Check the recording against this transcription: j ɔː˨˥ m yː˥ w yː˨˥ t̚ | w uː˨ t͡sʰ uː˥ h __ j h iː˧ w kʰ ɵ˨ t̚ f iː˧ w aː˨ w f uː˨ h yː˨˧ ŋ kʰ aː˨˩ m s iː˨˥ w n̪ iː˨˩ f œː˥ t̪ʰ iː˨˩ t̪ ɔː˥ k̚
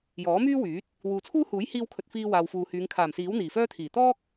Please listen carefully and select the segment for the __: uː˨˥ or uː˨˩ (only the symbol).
uː˨˥